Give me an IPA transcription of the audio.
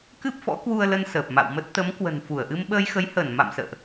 k ɨ˦˥ p̚ f ɔ̰˧˥ k w u˧ ə̯ l ə˧ n s əː˨˩ p̚ m a̰˧˨ w m ə˦˥ t̚ t̪ ə˨˦ m k w ə̤˨˩ n f u˧˩ ə̯ ʔ ɨ˧ m ɓ əː˧ j x ə˨˦ j h əː˧˩ n m a̰˧˨ m s ə̰ː˧˨ ʔ

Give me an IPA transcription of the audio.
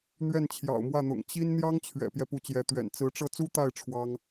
n̪ ɥ ɛ˥˩ n t͡ɕʰ j ɑ̰˨˩ ʊ̯ m w ä˥˩ n̪ ʊ̰˨˩ ŋ t͡ɕ i˥ n n̪ j ɑ˥ ŋ t͡ɕʰ ɥ ɛ̰˨˩ p j ɛ˦ p u˧˥ t͡ɕ j ɛ˧˥ t̪ ɥ ɛ̰˨˩ n t͡s ɹ̩˧˥ ʈ͡ʂ ɤ˥˩ t͡s u˥ t̪ a˥˩ ɪ̯ ʈ͡ʂʰ w ɑ˥ ŋ

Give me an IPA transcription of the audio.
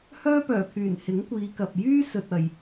h œː˥ p œː˨˩ pʰ yː˨˩ n h ɪ˨˥ ŋ kʷ iː˨˧ k ɐ˨ p̚ j yː˥ s ɵ˨ t̚ ɐ˨˩ j

